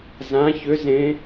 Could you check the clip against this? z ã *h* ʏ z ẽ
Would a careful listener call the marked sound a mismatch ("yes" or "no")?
yes